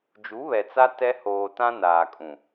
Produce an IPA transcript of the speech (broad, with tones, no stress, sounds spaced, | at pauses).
d͡ʒ u˨˦ β ɛ˨ t͡s a˦ t ɛ˦ h oː˨ t ã˦ n aː˨ kʼ ũ˨